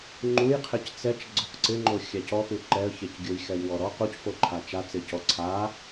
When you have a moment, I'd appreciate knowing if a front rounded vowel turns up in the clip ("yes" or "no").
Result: no